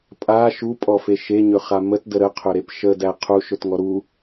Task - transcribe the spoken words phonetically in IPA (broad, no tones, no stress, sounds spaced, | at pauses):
pʼ a ʃ u pʼ ɔ f e ʃ e ɲ ɵ χ a m ə t d ə ɾ ə qʰ ɵ ɾ e p ʃ ə d æ qʰ u ʃ ɵ t ŋ ɔ ɾ u